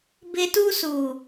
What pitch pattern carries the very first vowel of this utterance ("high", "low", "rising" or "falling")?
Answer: high